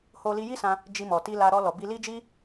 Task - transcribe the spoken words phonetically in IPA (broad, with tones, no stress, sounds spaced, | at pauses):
h o˧ l i˧ j i˦ s ã˧ | d͡ʒ i˧ m ɔ˨ t i˧ l a˧ ɾ ɔ˧ l ɔ˨ b i˧ l i˦ d͡ʒ i˦